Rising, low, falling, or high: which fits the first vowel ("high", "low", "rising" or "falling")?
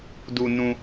low